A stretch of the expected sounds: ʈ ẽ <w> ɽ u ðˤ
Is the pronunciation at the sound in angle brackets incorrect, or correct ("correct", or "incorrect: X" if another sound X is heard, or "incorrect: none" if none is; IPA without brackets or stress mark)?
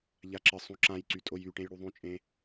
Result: incorrect: j